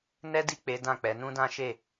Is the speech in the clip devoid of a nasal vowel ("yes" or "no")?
no